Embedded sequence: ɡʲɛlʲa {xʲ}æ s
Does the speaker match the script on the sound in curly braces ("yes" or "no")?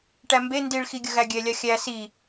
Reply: yes